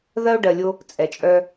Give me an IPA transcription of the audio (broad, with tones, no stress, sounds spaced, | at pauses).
ð ɜ˦ o̯ ɖ ɜ˨ lʲ o˦ | t͡sʼ ɛ˨ t͡ʃʼ œ˦